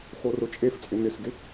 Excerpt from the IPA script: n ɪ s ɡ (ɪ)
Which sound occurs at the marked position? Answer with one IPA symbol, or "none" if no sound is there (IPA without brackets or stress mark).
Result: ɪ